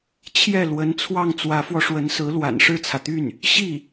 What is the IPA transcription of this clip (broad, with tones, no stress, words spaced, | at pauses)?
t͡ɕʰjɛ˥˩ lwə˧˥n t͡sʰwɑ˥˩ŋ t͡swä˧˥fwɔ˧ʂwə˧˥nsɹ̩˧˥ lwa̰˨˩nʂɻ̩˥˩t͡sʰä˩t̪y˥˩n | ɕi˥˩